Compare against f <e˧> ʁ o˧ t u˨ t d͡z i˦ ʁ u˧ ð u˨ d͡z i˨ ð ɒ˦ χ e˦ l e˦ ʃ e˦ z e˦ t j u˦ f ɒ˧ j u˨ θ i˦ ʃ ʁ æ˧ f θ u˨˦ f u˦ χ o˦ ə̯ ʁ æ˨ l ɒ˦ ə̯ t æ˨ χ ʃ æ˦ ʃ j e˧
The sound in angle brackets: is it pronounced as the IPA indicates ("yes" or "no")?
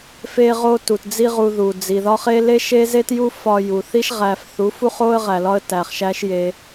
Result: yes